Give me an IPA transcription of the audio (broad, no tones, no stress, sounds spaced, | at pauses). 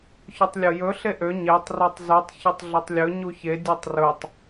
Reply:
ç ɵ tˤ lʲ o j ɵ ɬ e ʔ ø ɲ e tˤ r o tˤ z u tˤ ç o tˤ ɮ ɵ tˤ lʲ ɵ ɲ u ç e dʲ o tˤ r ɵ tˤ